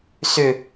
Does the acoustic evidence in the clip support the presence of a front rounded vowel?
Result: yes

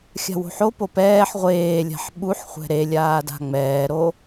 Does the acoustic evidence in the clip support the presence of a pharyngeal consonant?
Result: yes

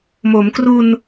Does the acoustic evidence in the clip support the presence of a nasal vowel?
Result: no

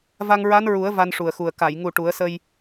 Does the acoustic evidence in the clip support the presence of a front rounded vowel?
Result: no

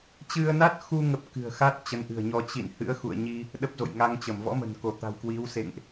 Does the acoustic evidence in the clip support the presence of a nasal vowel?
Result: no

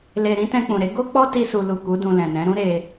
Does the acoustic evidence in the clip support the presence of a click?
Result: no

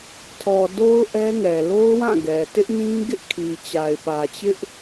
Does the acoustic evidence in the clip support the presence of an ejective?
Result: no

